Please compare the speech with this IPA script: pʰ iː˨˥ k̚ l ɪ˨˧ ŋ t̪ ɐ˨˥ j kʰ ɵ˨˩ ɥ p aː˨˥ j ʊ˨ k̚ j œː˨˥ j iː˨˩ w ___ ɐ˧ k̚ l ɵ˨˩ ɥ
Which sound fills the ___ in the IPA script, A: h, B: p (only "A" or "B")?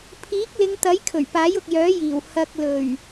A